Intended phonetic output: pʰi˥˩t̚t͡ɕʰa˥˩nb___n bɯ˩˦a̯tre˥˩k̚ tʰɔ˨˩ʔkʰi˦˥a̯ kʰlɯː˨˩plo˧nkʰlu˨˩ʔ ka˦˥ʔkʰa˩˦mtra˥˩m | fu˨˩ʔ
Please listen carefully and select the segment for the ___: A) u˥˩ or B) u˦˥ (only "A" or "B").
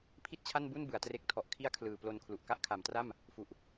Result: A